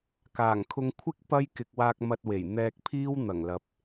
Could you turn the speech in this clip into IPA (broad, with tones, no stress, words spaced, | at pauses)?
kaː˨˩ŋkʰʊ˥ŋ kʷʰɪ˥k̚ pɐ˥j kɪ˨k̚waː˧k̚ mɐ˧t̚we˨˩j n̪ɛː˧k̚pʰiː˥w n̪ɐ˨˩ŋlɐ˨p̚